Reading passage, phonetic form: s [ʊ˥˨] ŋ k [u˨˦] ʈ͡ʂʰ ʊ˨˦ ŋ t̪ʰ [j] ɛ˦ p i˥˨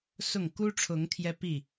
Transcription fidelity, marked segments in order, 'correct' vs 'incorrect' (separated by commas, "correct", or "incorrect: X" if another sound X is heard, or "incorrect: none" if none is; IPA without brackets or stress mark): correct, incorrect: u˦, correct